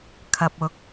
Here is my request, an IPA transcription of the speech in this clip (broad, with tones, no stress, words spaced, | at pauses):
kʰɐ˨p̚ʊ˨˥k̚